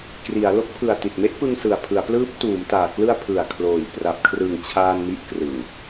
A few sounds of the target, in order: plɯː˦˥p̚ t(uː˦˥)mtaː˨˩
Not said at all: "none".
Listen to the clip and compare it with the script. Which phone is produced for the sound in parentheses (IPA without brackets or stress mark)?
uː˩˦